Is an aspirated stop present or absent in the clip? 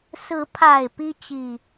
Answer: present